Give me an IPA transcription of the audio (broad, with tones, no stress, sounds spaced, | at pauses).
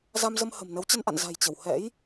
z a˧ m z ə˧ m h ə̤˨˩ m n ə˨˦ w t͡ɕ ə˧ n ʔ a̰˧˨ n z a̤˨˩ j t͡ɕ ə˧˩ w h ɛ̰˧˥ j